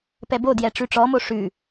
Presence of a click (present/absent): absent